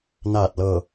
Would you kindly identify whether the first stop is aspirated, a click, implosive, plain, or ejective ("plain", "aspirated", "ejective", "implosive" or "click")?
plain